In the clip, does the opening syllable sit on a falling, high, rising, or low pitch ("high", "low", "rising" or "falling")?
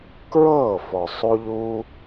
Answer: falling